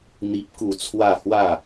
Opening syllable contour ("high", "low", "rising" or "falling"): high